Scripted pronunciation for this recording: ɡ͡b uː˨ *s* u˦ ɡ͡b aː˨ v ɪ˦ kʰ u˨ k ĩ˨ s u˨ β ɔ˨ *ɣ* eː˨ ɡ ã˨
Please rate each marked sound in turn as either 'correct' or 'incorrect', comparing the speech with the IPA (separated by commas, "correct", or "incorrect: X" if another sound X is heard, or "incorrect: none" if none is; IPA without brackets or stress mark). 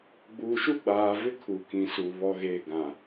incorrect: ʃ, correct